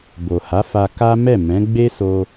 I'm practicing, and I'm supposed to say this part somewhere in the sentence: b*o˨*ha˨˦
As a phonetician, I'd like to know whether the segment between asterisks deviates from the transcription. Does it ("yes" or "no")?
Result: no